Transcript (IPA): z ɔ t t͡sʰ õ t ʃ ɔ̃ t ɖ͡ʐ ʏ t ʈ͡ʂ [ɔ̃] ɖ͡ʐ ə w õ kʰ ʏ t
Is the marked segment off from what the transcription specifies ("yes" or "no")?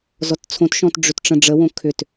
yes